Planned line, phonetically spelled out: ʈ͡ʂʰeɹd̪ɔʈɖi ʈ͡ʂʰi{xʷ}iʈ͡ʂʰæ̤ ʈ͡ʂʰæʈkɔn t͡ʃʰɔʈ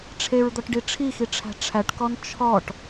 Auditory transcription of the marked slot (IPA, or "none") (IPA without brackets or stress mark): x